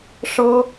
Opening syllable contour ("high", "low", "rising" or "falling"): high